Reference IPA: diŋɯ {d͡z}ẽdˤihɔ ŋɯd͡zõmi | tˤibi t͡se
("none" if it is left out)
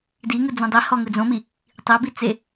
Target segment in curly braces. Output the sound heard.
d͡z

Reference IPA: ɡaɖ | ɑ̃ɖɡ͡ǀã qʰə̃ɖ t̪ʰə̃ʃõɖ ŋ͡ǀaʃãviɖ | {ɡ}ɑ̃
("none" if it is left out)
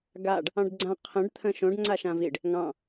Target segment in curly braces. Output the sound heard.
ŋ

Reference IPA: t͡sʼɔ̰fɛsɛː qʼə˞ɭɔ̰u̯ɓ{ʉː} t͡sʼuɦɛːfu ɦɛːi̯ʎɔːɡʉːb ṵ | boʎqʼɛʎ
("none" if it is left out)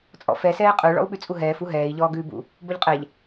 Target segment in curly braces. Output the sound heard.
ʉ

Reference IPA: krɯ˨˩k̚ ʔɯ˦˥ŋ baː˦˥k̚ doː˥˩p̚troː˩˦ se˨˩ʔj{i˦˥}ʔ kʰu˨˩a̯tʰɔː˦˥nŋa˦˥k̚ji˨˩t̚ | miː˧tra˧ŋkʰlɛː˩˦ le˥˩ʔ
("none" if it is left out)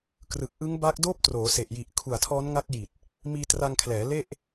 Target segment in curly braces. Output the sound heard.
i˨˩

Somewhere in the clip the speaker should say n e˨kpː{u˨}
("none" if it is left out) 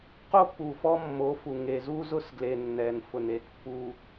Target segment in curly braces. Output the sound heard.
u˨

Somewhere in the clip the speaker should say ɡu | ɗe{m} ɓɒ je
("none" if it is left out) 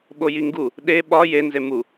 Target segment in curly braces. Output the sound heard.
none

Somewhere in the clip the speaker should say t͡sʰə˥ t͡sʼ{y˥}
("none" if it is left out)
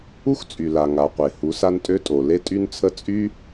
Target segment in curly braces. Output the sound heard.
y˥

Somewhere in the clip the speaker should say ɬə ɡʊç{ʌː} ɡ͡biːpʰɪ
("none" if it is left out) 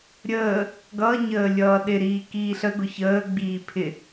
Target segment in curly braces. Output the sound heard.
əː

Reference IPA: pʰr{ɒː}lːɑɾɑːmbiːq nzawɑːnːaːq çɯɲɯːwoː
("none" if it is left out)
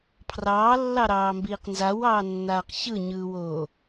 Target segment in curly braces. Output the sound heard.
ɑː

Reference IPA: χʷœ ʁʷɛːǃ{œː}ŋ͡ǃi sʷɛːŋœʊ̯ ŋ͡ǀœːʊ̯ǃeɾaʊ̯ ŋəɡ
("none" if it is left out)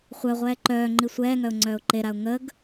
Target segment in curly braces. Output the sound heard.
œː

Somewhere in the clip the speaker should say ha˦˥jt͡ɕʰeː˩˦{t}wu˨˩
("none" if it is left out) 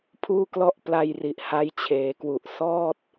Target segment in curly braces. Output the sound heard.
k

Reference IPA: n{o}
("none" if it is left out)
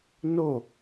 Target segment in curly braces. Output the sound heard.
o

